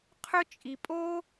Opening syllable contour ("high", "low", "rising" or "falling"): high